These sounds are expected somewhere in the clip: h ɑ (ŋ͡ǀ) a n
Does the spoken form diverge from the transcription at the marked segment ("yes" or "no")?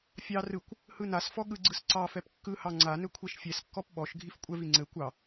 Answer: no